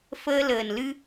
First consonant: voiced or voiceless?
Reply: voiceless